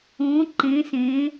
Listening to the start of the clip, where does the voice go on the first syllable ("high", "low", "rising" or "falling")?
rising